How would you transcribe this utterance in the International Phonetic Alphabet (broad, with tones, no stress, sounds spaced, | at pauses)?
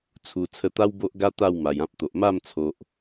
t͡sʰ u˨˩ t͡sʰ ə˧ t̪ a˦ w b o˦ ʔ ɡ a˦ t̪ a˥˧ w m a˨˩ j ã˦ p̚ t̪ o˨ ʔ m a˥˧ m t͡sʰ o˨ ʔ